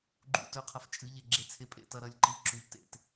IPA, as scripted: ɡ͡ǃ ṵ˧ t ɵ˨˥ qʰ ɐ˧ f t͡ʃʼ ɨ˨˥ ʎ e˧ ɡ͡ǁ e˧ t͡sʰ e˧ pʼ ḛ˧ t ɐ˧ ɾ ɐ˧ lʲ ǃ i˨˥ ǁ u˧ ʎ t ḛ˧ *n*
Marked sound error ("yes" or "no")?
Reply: yes